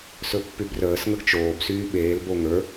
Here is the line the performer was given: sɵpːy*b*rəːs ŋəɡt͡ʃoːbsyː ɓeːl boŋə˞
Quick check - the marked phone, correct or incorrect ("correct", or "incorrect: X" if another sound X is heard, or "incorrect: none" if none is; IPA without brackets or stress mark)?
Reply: correct